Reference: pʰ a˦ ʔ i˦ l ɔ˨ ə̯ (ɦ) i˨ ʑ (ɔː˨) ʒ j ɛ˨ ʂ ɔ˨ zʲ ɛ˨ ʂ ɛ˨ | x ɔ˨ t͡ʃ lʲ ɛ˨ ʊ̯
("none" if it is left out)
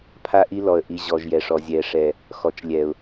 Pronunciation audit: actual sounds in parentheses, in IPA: ʔ, ɔ˨

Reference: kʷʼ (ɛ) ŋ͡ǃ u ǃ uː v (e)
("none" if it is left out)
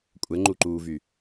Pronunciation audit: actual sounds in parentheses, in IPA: ɛ, y

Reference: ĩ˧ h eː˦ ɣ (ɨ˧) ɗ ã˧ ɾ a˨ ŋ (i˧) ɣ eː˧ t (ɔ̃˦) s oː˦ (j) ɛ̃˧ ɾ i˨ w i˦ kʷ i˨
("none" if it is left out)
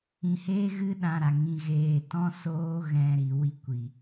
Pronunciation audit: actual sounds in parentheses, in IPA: ɨ˦, ĩ˧, ɔ̃˦, ɣ

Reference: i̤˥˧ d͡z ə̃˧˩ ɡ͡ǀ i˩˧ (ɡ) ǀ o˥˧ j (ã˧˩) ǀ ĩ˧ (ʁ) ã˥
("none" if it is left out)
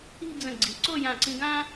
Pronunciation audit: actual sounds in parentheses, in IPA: none, ã˧˩, ɡ

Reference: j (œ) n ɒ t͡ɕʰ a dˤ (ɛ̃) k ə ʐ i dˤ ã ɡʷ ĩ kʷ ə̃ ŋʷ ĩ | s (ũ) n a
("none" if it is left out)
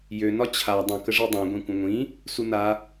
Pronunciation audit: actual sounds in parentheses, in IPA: ø, ə̃, u

